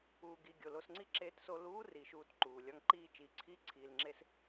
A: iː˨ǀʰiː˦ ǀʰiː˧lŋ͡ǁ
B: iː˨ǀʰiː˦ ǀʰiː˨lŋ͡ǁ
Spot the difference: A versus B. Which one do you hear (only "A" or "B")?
B